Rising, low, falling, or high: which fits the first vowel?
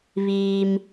low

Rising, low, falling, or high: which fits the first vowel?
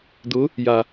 rising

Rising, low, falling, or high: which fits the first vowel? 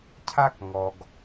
high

